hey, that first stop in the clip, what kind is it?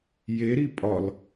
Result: ejective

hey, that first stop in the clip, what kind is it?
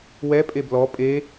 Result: ejective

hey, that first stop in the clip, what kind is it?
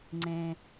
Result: click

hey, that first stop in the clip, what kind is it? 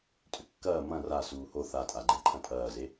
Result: ejective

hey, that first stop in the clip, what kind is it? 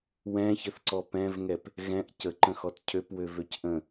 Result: click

